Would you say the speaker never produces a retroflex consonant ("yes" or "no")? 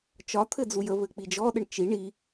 no